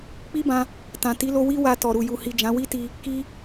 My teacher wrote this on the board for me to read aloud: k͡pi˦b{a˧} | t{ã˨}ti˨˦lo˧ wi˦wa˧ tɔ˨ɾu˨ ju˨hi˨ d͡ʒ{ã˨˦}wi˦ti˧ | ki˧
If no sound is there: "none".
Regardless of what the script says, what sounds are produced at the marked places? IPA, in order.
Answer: ã˧, ã˨, ã˨˦

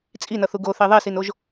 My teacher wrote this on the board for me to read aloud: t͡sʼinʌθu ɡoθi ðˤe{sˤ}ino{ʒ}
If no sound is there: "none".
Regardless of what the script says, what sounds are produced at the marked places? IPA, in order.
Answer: s, ʒ

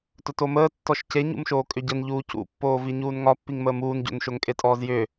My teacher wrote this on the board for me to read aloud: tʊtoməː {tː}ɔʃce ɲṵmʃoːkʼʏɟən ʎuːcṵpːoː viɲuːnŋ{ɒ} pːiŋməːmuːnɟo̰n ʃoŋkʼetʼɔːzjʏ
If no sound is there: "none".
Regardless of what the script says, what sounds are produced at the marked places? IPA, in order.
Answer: tː, ɒ

